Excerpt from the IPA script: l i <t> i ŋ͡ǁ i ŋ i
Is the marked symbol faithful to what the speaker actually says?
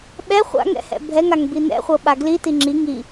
yes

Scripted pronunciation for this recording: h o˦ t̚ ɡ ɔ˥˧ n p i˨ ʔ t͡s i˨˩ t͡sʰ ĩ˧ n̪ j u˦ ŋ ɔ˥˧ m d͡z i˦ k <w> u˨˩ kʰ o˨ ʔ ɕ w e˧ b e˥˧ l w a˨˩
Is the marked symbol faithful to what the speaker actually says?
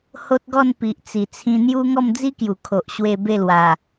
no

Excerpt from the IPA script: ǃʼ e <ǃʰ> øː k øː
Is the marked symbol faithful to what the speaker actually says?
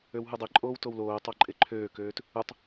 yes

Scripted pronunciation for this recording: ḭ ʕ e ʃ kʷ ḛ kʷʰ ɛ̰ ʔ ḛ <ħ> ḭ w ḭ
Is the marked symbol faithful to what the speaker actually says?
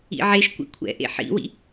yes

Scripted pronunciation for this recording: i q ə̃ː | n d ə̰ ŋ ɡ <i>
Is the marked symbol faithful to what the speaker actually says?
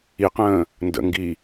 yes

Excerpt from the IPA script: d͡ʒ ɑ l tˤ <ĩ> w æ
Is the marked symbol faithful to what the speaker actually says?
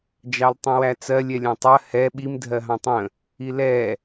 yes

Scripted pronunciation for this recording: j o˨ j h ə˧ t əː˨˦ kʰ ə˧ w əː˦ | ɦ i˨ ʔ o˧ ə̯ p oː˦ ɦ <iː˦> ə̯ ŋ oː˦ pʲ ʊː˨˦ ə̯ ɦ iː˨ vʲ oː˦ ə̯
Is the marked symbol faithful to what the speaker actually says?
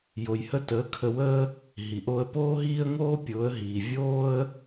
yes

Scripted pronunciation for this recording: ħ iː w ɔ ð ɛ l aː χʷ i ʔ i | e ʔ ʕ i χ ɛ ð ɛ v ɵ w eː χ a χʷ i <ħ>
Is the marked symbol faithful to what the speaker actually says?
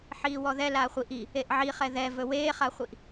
no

